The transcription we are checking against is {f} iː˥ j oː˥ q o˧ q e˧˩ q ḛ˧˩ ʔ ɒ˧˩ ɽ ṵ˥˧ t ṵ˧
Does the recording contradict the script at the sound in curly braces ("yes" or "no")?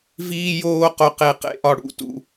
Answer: yes